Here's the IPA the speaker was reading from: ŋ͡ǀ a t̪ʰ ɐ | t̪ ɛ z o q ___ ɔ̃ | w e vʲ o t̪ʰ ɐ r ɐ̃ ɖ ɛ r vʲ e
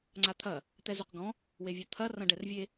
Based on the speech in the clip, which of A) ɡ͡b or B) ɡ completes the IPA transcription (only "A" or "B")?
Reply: B